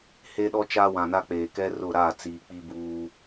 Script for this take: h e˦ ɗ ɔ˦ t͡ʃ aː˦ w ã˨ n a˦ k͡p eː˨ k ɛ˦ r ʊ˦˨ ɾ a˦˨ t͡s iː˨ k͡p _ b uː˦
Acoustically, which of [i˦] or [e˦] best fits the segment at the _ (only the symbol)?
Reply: i˦